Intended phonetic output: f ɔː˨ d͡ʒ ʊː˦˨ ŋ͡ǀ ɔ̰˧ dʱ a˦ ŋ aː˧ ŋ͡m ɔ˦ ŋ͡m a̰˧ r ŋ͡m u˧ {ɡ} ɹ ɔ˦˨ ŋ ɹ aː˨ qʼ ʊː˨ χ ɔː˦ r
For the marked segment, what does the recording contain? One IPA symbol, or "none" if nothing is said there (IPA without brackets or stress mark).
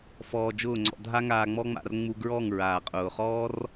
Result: ɡ